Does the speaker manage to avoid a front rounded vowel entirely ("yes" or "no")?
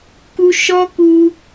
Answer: yes